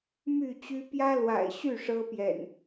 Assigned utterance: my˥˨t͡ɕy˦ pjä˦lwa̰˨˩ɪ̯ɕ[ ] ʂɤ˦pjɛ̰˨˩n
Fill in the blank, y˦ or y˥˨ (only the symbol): y˥˨